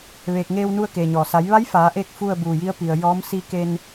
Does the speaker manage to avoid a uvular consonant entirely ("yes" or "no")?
yes